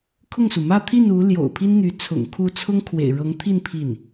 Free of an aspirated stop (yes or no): no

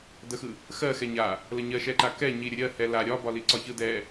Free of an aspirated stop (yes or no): yes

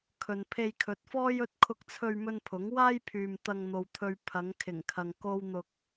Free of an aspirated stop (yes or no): no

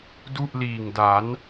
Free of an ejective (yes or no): yes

